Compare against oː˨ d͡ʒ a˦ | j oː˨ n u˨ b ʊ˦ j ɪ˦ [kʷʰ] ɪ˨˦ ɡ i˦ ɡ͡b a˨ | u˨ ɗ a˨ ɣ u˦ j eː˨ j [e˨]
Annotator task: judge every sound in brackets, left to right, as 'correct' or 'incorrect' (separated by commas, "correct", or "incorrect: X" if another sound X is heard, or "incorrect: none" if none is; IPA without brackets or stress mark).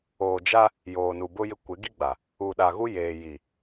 incorrect: kʷ, incorrect: i˨